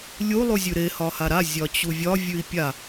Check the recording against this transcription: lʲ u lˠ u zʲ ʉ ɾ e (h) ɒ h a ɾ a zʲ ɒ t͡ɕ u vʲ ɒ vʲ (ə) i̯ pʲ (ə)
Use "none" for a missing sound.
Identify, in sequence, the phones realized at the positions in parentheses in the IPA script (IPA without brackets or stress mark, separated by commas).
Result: h, ʉ, a